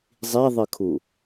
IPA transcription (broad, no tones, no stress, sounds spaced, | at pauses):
zˤ i ðˤ ɨ kʰ u